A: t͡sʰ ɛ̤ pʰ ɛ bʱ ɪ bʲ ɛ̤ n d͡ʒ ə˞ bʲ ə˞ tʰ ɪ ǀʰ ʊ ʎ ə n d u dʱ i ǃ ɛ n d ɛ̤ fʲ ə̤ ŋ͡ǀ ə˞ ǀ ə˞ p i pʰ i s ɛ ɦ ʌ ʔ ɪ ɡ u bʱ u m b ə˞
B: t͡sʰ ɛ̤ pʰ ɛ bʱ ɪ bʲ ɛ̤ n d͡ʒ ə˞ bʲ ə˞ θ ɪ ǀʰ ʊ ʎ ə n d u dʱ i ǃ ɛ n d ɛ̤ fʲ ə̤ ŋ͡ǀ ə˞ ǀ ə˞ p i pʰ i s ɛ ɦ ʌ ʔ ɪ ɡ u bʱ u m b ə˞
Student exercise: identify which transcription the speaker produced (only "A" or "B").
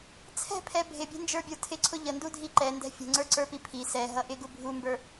A